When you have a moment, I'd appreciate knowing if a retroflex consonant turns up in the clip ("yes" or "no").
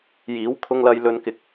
no